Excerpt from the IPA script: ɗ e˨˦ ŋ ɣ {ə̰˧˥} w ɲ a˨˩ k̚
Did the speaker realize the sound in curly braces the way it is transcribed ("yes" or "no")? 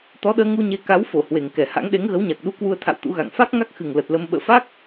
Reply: no